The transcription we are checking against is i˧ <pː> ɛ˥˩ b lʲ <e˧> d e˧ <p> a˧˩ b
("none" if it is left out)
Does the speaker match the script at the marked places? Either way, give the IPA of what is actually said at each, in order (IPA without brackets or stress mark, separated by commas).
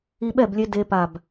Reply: ɓ, e˧, p